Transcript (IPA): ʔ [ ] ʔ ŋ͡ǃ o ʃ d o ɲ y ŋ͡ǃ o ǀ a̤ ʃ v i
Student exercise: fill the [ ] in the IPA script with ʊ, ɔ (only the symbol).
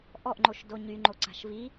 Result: ɔ